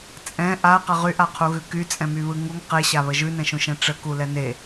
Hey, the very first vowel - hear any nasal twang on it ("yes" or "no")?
yes